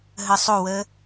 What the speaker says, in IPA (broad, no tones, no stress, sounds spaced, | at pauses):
ɦ ə sˤ o w ə